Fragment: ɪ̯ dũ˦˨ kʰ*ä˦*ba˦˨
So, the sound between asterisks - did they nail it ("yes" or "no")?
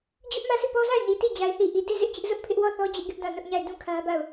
yes